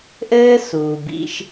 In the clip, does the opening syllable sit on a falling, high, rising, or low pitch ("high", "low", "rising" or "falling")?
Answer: high